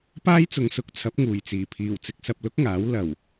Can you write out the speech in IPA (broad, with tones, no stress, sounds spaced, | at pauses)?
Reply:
p aː˥ j t͡s ʊ˨˧ ŋ s ʊ˨˥ k̚ t͡sʰ ɐ˨˥ p̚ ŋ uː˨˩ j t͡s iː˨˩ pʰ iː˨˩ w t͡s ɪ˧ k̚ s ɐ˧ p̚ l ʊ˥ k̚ ŋ aː˨˥ w l ɐ˨˩ w